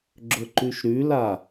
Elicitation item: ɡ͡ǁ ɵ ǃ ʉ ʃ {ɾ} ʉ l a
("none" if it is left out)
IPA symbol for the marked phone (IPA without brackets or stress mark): ɾ